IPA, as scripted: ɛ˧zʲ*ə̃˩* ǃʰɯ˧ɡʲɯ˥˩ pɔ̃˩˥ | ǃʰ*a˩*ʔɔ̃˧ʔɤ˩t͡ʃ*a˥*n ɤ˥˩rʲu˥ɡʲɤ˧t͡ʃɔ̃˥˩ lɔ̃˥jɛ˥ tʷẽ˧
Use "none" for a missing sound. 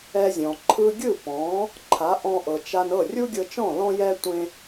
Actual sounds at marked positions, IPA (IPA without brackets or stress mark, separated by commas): ɔ̃˩, a˩˥, a˧